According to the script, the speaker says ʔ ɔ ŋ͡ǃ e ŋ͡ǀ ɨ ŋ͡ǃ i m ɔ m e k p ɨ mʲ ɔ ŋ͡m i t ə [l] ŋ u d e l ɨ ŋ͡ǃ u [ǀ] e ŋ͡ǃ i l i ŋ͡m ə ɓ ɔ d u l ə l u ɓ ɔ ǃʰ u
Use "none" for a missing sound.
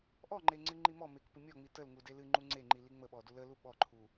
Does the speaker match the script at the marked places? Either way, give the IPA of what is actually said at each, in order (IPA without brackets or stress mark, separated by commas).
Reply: l, ŋ͡ǀ